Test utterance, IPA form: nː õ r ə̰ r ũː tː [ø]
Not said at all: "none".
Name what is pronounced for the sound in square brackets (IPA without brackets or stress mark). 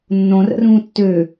ø